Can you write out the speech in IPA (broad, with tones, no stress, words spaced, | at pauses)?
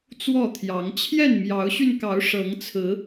t͡swɔ˥˨t̪ʰjɑ˨˦ŋ t͡ɕʰjɛ˥˨nmjɑ˨˦ʊ̯ɕy˧nkɑ˨˦ʊ̯ ʂɤ˨˦ŋt͡sʰɹ̩˨˦